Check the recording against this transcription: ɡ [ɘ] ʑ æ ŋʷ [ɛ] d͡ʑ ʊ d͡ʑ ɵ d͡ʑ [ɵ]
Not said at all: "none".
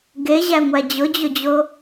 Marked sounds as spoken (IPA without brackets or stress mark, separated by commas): e, æ, o